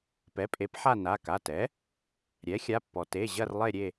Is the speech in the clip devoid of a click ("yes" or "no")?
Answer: yes